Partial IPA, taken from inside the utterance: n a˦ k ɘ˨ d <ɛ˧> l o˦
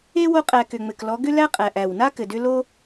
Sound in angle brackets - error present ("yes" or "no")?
yes